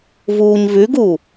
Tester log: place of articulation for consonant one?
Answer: labial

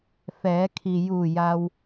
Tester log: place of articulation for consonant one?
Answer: labial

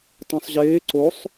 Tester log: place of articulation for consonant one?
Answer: alveolar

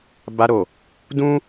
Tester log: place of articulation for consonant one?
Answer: labial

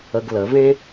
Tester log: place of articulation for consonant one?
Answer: velar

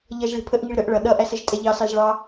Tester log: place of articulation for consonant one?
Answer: palatal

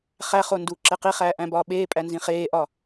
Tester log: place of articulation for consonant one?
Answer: uvular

